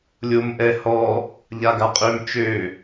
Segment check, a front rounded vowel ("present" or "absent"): present